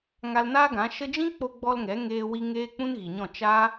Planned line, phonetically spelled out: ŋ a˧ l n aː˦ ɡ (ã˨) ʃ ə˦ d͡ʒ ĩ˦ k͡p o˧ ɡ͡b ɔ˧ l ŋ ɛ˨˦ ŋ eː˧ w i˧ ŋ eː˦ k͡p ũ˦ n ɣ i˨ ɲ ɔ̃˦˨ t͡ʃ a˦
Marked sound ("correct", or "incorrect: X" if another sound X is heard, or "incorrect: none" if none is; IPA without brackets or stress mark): incorrect: ã˨˦